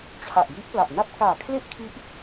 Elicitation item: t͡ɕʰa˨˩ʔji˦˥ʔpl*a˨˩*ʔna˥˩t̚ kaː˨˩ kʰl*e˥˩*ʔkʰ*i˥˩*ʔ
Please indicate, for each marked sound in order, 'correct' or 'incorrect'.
correct, correct, incorrect: i˦˥

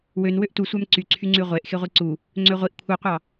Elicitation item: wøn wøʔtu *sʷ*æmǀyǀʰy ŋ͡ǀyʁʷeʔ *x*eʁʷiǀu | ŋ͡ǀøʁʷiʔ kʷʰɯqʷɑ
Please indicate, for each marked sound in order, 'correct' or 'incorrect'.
correct, correct

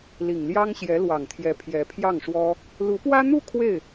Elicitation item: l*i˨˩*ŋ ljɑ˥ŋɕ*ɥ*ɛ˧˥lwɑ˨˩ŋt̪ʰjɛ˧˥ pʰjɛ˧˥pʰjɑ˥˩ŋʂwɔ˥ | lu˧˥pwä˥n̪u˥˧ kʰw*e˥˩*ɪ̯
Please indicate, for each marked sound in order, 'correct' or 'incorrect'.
correct, incorrect: j, correct

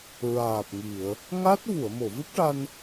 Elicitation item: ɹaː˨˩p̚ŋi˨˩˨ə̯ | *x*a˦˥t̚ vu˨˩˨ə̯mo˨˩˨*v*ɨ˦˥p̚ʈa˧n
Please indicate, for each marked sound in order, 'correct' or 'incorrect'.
incorrect: ŋ, correct

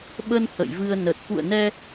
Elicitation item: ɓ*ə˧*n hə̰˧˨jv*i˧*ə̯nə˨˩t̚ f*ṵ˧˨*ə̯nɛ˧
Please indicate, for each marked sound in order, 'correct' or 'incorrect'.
correct, incorrect: ɨ˧, correct

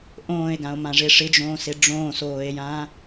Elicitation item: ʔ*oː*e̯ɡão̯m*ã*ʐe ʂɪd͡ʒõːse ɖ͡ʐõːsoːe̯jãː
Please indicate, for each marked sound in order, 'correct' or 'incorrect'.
incorrect: õː, correct

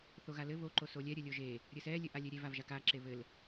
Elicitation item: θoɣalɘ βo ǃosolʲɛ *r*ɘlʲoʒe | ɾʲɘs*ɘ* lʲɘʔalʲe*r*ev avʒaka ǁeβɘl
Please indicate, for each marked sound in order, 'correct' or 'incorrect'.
incorrect: ɾʲ, incorrect: ɛ, incorrect: ɾʲ

